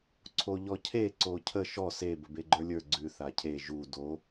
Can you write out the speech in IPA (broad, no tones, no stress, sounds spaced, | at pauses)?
ǀʰ o ʎ ɔ cʰ e ǀ o cʰ ə ʃ ɔ s e b ə b e ɡ͡ǃ ə˞ lʲ ə˞ ɡ͡ǀ ʉ θ a cʰ e ʒ u d o